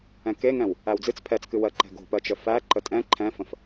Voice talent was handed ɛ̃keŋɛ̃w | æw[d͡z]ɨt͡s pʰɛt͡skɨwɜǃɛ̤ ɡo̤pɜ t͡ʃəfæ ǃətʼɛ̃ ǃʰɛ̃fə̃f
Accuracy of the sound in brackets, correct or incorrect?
correct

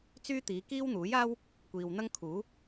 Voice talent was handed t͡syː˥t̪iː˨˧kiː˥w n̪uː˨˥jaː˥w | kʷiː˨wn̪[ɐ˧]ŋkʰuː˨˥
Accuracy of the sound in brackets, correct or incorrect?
incorrect: ɐ˥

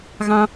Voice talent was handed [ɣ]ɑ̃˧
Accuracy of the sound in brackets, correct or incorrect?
correct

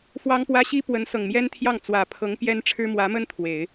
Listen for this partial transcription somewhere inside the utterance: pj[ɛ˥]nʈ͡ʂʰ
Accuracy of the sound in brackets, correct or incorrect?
correct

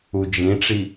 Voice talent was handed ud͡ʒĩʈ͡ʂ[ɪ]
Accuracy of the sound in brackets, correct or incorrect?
incorrect: i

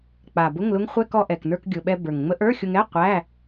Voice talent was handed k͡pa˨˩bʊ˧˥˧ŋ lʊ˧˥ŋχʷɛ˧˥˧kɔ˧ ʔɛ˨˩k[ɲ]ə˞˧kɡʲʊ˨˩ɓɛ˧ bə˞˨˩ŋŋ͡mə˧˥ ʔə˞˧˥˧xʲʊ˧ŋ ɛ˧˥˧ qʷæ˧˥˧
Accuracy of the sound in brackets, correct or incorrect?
incorrect: n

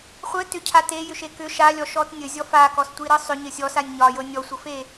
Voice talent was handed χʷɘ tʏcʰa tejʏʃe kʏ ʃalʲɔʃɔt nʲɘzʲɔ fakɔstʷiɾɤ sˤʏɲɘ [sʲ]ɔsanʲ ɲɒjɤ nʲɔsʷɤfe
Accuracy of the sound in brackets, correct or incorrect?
correct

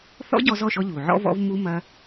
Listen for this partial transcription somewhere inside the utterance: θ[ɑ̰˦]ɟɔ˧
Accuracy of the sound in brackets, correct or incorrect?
incorrect: ɔ̰˦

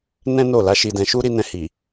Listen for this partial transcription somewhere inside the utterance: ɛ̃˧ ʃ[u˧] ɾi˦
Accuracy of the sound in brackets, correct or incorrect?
incorrect: u˦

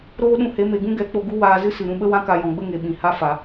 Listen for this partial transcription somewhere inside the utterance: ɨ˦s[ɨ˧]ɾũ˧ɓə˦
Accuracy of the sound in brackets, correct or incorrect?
incorrect: ɨ˨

